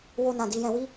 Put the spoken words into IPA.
wo˦nã˧ di˧jɛ̃˧wi˦

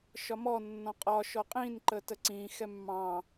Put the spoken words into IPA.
ʃɒmɔ nːɔ̃qʼɒ ʃɔqʼĩn ǃətəǀĩ xɛmːɑ̃

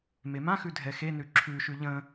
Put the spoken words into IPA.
memãxʉ dʱɛxenʉ ǁʰʉʃʉ ʎə̃

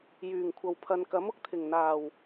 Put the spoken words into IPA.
jyː˨˩ŋkʷʰɐ˨w pʰɐ˨nkɐ˨˥m ʊ˨k̚t̪ʰɪ˨˩ŋ n̪aː˨˩w

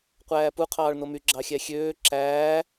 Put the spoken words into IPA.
qʷæːpu qʰɑːɭnomy ɡ͡ǁɑxʲæxʲøː ǁæː

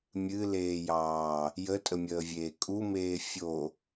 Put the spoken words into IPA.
mʲɨleːjɑː | jətʼəmʲəːvʲeː kʼumeː fʲo

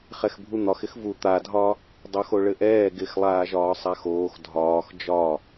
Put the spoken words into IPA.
χɛxbʱun̪ɒx ɪxvu t̪adʱɒ | dˤoxoɭɘʔɛː ɡɪxlˠaːʒɒː sˤaxoːx dʱɒːx d͡ʒɒ

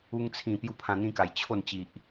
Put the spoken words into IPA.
u˧ŋt͡sʰĩ˨˩ pju˦pʰã˧n̪ĩ˦ka˨˩j t͡ɕʰo˥˧nt͡ɕi˨ʔ

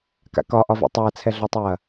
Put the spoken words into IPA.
ka̰kɒʔɒvɛ̰ tˤɐːt͡sʰɛɮɒtˤɐː

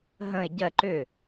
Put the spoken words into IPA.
ɦə̃e̯ ɟɜ ǃʏ

